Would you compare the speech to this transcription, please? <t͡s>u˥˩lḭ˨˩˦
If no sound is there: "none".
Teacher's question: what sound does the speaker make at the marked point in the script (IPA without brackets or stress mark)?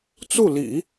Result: t͡s